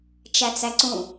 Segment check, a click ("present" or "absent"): present